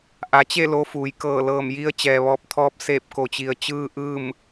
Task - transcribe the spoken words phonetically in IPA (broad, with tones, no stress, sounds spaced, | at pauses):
ʔ a˩˧ t͡ɕ e˥˨ l o˧ f uː˩˧ j k ɤː˧˩ l ɤː˧˩ m j i˧ ə̯ t͡ɕ ɛː˩ ʋ ɔː˧˩ p̚ t̪ʰ ɔː˧ p̚ s eː˧˩ p̚ k o˩ t͡ɕ i˩ ə̯ t͡ɕ ɯː˧ ʔ ɯː˥˨ m